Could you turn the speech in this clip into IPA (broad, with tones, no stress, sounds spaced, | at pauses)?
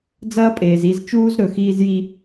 d͡z ɐː˦ pʼ eː˨ z i˧ z t͡ʃ uː˦ z ɾ ɵ˨ x iː˧ z j i˧